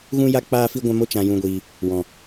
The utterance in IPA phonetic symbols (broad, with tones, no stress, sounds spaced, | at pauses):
ɣ ũ˦ j a˦ k͡p aː˦ f i˦ ɡʷ ã˦ m o˦ t͡ʃ ã˧ j ũ˧ ɡʷ iː˧ | w ɔ̃˨